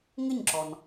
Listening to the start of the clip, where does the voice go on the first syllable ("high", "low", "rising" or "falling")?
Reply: falling